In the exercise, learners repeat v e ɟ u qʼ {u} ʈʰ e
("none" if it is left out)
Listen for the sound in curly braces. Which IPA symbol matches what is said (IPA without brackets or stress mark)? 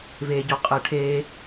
ɯ